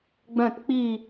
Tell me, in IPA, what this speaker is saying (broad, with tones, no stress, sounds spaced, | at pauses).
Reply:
ɡ͡b œ̃˥˧ t k͡p i˥˧